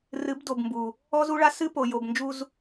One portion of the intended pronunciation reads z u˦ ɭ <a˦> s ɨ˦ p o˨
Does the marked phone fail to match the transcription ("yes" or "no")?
no